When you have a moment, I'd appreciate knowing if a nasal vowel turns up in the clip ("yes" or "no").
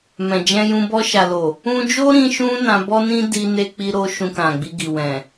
yes